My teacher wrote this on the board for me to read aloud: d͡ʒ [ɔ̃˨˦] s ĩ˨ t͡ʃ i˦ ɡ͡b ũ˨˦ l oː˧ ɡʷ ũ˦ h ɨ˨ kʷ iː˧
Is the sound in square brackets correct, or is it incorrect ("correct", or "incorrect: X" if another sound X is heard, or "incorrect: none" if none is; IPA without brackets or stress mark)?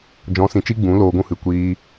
correct